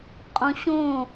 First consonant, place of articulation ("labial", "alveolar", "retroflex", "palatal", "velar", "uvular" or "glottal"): uvular